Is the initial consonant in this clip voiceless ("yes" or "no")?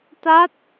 yes